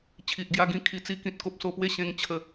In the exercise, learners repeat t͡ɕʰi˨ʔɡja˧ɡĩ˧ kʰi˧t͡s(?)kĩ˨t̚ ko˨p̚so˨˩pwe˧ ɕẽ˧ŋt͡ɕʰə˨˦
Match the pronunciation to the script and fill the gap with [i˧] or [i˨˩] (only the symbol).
i˧